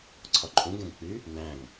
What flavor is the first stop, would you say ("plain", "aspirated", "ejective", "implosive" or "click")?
click